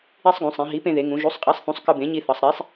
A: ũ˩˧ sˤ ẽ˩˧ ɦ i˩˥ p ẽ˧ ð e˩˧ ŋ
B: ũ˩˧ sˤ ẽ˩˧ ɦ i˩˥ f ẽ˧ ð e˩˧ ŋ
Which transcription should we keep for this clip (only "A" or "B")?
A